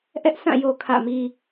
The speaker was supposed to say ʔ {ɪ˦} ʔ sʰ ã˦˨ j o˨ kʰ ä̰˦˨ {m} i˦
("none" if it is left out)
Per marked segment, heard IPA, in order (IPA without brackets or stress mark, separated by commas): ɛ˦, m